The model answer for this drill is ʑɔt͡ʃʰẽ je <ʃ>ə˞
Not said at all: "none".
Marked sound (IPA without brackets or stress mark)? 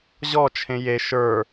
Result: ʃ